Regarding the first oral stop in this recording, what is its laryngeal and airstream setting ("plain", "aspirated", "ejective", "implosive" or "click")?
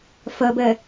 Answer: plain